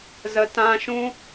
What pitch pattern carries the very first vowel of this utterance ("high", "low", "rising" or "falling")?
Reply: low